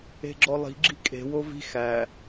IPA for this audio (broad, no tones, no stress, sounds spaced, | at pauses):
e̤ ɡ͡ǁ ɔ lˠ i̤ ɡ͡ǁ i̤ kʼ e̤ w o v i̤ x æ